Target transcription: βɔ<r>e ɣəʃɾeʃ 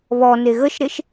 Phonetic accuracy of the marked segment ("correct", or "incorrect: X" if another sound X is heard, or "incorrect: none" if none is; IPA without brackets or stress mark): incorrect: n